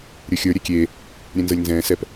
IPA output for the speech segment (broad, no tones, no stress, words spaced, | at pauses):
ɾʲə˞xʲə˞ ɾʲɛkʲeː | ɾʲɛ̃nzɤlʲnzɛ̃ː sɛp